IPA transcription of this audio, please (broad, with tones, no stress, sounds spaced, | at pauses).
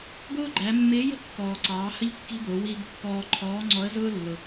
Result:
ɡ ʊː˥ ɡ͡ǃ æ˩˧ mː ɪː˧˥ j ə̤˥ kː ɔː˩ ǀ ɑː˩˧ h ə˥ ʎ kː i̤˥ b ʊː˩˧ w iː˧ ɡ kː ɔː˧ ǃʰ ɔː˧˥ ŋ͡ǀ ɔ˧˥ ə̯ z ʊː˥ lː ʊ˩